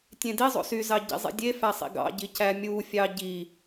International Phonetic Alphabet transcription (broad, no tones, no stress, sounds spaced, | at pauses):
tʲ ẽ d i zˤ o̰ s y z ɑ ɟ ḭ zˤ ḭ dʲ e f æ sˤ ḭ ɡ ɑ̰ ɟ i c æ mʲ u fʲ ɑ ɟ i